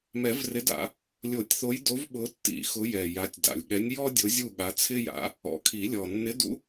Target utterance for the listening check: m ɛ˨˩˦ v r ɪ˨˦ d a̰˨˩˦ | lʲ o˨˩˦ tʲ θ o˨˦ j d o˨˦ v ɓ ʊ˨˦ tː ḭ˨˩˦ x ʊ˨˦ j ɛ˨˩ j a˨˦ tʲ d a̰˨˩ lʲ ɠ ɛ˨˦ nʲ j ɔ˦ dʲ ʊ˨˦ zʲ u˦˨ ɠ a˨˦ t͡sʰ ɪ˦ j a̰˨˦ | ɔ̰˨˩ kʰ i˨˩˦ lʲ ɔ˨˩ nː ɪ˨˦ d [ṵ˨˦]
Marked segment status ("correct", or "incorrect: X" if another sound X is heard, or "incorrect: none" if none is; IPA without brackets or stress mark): correct